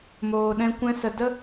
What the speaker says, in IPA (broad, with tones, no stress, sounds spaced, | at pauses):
m oː˨ ɗ ɛ̃˧ kʷ ɛ̃˧ s ə˨ d ə˦